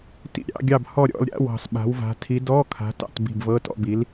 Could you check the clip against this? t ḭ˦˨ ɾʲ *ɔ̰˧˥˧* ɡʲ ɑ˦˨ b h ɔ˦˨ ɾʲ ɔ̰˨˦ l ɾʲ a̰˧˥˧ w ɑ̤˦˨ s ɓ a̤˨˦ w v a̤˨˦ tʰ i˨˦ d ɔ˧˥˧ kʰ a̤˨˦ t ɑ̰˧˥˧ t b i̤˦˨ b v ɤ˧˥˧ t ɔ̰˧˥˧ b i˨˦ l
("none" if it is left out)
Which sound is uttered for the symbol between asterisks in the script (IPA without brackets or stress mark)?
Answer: ɑ̰˧˥˧